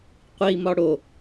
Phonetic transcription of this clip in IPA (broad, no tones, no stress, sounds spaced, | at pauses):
qʷ i m ɒ ɽ o